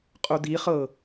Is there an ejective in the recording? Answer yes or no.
yes